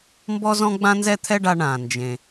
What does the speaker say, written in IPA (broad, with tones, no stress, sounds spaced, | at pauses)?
m b ɔ˥ z ɔ̃˥ ɡ͡b ã˥ n z ɛ˥ t̪ʰ ɛ˥ ɖ a˧ ɳ ã˩ n d͡ʒ ẽ˩